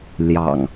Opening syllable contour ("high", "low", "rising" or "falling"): low